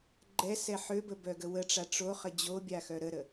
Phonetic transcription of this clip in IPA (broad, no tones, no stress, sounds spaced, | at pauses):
ɡ͡ǃ ɛ s ɛ ħ ø b ə b œ ɡ ə w ə ʈ͡ʂ a ʈ͡ʂ o χ ə d͡ʑ o bʲ a x œ ɾ ə ɾ ə